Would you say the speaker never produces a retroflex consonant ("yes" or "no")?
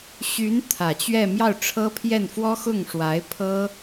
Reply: no